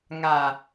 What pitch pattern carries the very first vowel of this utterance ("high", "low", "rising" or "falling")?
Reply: low